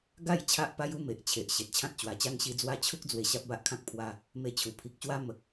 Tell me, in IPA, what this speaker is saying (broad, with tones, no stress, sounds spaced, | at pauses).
ɡ a˥˧ j t͡ɕʰ a˦ ʔ p a˦ j u˦ m e˨ ʔ t͡ɕʰ e˨ ʔ ɕ e˨ t̚ t͡ɕʰ ã˦ t̚ t͡ɕ w a˨˩ t͡ɕ a˦ ŋ ɕ i˧ d͡z w a˦ t͡ɕʰ u˦ k̚ d͡z w e˧ ɕ a˦ p̚ b a˦ ʔ kʰ ã˦ k̚ pʰ w a˧ | m e˧ t͡ɕʰ u˨˩ pʰ i˨ k̚ ɕ w a˦ m ə˨ k̚